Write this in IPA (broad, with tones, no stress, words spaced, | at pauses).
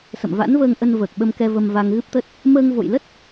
sə̰˧˨mva̰˧˥nvəː˧ŋʔə˧n vəː˨˩k̚ɓə˧mkɛ˧ və˧mva˧ŋɣɨ˦˥p̚t̪ə˦˥t̚ | məː˧ŋvo̰˧˨jlə˦˥t̚